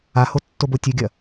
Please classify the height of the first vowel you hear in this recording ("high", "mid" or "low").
low